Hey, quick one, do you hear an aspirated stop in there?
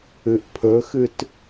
yes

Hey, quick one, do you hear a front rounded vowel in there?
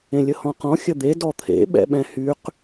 yes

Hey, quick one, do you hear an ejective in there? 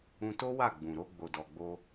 no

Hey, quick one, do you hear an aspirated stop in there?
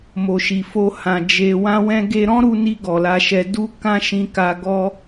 no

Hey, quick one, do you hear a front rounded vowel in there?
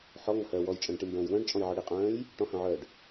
yes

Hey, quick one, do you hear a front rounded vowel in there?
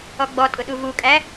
no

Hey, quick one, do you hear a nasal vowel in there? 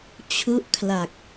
no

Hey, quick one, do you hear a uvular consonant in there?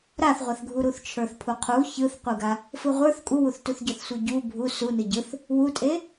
yes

